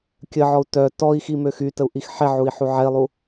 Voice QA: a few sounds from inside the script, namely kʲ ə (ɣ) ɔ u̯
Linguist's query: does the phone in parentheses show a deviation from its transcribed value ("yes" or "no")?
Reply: yes